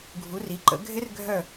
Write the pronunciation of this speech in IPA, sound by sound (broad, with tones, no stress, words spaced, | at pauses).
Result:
ɡʱu˨˦ri˨˦ǃə̰˨˦ ɡʱɪ˦˥r ɡʱœ˥˧